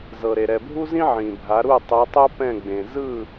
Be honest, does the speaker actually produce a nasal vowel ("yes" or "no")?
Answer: yes